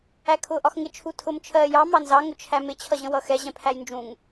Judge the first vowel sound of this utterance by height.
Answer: low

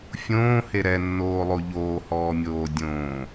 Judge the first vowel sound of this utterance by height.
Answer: mid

